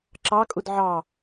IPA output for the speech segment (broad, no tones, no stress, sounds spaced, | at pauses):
ǁ ɑ kʼ u d ʕ ɑ